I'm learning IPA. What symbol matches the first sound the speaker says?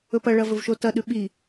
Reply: ɵ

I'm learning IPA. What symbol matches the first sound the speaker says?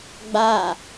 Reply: ɡ͡b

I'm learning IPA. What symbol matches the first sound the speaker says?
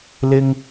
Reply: l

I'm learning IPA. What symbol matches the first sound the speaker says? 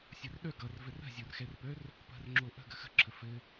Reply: sʲ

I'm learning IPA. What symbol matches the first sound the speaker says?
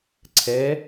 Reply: ǀʰ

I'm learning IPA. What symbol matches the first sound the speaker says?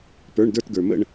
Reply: p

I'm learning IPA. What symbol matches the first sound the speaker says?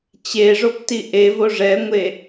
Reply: t͡ɕ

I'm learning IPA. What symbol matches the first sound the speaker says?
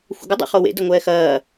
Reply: xʷ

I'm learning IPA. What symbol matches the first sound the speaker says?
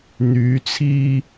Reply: n̪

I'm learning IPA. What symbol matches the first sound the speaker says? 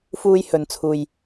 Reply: f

